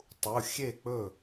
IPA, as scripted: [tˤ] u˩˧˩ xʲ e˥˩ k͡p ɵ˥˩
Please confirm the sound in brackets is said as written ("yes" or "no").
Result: yes